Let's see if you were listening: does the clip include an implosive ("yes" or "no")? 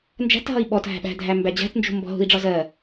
yes